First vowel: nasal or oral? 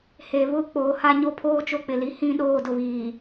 oral